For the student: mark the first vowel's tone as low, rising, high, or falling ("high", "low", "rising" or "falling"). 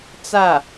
falling